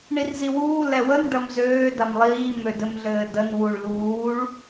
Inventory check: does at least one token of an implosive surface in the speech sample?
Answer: no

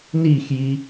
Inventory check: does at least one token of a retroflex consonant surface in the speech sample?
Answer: no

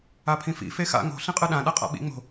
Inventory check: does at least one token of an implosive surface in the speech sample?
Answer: yes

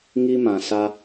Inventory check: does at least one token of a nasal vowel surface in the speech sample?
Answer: yes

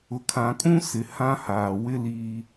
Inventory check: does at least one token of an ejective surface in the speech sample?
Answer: yes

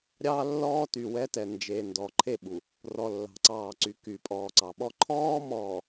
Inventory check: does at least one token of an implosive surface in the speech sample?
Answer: yes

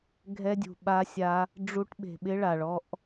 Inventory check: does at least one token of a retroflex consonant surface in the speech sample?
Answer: yes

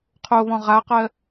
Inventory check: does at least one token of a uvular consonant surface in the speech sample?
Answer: yes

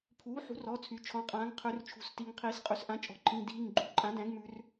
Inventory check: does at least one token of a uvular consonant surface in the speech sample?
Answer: yes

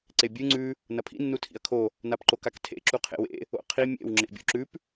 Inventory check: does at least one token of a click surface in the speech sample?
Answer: yes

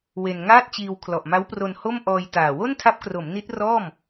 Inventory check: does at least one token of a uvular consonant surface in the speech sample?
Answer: no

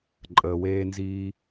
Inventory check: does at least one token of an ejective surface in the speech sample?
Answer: yes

